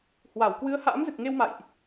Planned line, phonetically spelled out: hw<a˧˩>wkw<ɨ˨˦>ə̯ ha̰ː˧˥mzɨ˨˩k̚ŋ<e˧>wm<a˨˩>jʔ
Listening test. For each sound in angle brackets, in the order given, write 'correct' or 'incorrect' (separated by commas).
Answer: correct, correct, correct, incorrect